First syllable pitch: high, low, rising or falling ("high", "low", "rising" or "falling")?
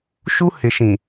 high